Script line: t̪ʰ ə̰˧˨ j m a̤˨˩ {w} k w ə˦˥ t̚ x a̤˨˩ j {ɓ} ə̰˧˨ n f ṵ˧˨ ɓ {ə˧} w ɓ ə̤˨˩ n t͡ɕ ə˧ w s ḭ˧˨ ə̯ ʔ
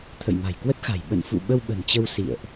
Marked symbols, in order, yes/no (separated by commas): no, yes, yes